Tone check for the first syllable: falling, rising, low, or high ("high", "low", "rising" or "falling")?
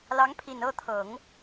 rising